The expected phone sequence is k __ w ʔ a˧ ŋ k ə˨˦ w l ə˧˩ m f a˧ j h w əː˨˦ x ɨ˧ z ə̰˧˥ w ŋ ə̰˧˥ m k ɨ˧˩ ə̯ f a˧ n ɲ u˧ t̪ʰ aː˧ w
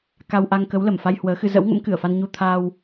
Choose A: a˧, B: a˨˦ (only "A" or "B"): A